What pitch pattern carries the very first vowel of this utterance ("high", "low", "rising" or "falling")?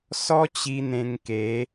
high